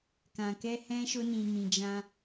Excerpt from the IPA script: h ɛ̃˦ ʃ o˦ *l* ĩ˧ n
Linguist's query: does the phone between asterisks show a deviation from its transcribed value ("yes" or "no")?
yes